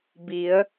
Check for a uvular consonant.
absent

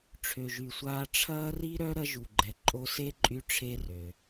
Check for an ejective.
present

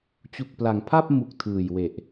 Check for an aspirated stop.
present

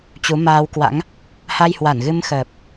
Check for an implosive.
absent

